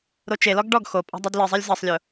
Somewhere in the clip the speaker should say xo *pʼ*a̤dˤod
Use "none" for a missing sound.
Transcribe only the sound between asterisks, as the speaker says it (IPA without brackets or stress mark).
pʼ